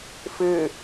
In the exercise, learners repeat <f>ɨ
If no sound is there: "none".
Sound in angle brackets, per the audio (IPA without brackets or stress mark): f